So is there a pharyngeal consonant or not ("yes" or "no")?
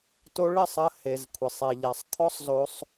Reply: no